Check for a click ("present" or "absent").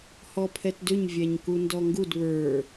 absent